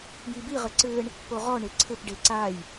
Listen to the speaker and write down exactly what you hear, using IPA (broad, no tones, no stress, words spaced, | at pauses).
jibiʁɘ ǀɘːɳ | poʁɔɳe ǀʰɘpɖe ǀaːj